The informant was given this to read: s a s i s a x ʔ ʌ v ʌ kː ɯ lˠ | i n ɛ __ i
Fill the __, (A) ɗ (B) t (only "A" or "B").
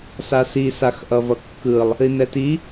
B